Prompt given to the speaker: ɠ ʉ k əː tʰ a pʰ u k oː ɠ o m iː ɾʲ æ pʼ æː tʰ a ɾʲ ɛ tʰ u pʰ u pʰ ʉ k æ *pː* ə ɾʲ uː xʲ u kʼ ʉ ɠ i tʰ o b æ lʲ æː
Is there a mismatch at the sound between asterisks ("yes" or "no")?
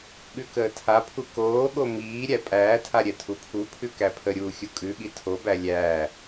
yes